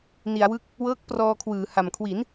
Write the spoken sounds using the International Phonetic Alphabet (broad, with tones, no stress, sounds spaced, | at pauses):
n i˩˦ a̯ w ɯ˦˥ k̚ | w ɤː˦˥ k̚ p r ɔː˧ kʰ w ɯː˩˦ h a˨˩ m kʰ w i˩˦ n